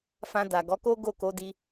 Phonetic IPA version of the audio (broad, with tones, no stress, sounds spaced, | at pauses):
f ã˧ d a˨ ɡ ɔ˨˦ k o˦ ɡ o˦˨ k o˨˦ d i˧